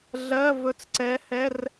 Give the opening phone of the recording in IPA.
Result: ɮ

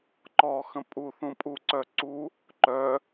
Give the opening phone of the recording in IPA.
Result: ǃ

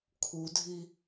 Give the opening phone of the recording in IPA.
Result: kʰ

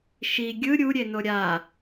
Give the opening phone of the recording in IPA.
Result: ʃ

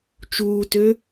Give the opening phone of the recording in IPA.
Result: t͡ʃ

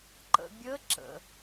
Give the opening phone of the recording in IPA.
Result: ǃ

